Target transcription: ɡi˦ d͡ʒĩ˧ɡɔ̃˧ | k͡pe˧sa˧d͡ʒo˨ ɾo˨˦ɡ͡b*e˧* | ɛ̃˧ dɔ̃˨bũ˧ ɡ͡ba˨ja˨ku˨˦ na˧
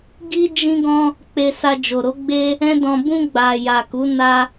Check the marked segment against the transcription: incorrect: e˦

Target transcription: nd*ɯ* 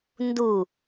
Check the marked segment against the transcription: incorrect: u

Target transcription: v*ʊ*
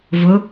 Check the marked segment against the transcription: correct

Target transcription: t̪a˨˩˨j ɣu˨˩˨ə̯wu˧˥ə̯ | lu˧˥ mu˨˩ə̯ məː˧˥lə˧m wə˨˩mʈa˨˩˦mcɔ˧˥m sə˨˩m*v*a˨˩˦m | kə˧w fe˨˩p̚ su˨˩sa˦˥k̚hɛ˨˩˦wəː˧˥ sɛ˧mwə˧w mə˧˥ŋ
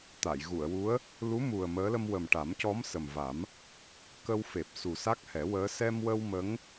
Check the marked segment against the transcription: correct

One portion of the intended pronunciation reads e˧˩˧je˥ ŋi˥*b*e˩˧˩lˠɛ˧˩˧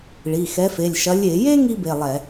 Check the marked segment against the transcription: correct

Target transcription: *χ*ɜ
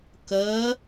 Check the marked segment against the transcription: incorrect: k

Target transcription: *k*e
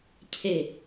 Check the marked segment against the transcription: incorrect: cʰ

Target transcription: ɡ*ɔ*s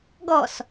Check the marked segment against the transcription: correct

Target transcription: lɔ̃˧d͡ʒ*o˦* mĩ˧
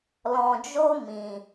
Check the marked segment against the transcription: correct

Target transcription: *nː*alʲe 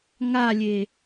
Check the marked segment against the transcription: incorrect: ŋ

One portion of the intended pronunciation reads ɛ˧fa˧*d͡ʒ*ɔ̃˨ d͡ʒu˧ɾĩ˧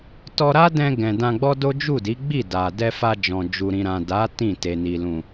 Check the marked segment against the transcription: correct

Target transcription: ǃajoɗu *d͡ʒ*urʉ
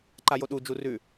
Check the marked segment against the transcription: correct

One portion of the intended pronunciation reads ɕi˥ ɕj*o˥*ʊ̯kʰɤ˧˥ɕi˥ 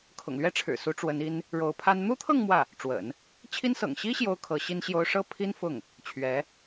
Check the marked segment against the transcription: correct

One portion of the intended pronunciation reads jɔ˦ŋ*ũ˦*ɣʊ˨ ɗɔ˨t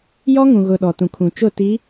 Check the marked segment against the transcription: incorrect: ũ˨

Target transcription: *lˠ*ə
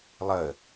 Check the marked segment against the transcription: correct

